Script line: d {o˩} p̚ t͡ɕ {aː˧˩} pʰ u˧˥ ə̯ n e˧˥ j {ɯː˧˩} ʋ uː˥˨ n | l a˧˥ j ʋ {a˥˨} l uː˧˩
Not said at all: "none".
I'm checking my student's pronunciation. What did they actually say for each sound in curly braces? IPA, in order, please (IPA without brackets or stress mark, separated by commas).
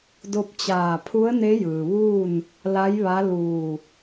o˧, aː˧˩, ɯː˩, a˧˥